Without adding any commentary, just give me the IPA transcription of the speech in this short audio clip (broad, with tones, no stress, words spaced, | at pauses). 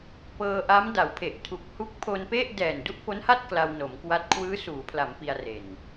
pɤː˧ʔa˦˥m da˩˦wpʰe˨˩ʔ tʰu˨˩k̚hu˦˥k̚ pʰo˧npe˥˩ʔ dɛː˨˩ndu˥˩ʔfo˦˥nha˥˩t̚ kla˧wno˩˦mkwa˦˥t̚ kʰwɯː˦˥suː˩˦pʰla˩˦m pi˧a̯re˨˩n